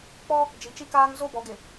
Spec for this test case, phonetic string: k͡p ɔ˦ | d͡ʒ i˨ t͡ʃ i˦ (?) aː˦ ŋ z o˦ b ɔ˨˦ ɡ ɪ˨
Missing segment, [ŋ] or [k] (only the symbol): k